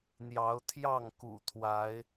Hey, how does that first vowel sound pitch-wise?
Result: rising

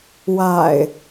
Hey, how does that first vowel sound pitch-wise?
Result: low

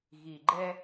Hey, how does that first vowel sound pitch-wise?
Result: low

